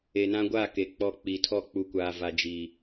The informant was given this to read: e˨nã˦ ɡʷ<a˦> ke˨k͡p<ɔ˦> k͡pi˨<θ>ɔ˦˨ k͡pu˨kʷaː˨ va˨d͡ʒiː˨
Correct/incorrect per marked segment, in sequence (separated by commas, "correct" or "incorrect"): incorrect, incorrect, incorrect